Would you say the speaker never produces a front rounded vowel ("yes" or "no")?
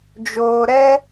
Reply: yes